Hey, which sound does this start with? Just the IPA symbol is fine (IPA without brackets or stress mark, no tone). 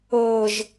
ɤ